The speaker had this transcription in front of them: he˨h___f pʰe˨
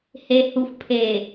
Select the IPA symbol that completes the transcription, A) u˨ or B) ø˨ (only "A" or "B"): A